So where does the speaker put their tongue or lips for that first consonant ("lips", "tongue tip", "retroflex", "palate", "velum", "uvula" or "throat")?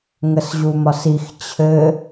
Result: velum